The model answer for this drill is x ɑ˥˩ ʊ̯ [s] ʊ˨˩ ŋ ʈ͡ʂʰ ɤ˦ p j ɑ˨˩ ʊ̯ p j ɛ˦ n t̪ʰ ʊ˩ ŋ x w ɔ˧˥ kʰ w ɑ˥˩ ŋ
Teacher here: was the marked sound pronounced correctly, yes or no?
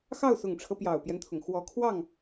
yes